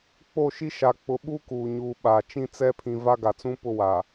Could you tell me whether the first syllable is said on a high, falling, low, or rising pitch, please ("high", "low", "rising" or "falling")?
falling